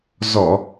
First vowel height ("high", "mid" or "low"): mid